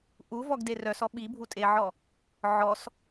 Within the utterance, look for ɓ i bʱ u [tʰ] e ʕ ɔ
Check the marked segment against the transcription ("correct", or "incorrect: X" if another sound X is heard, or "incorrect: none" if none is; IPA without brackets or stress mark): incorrect: tʼ